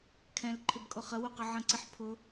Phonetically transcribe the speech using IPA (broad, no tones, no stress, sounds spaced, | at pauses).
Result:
kʰ ɛ̃ l ǃʰ ɪ b kʼ ʊ χ ə w u q ə ʕ ə̃ ǀ i ħ pʰ ʊ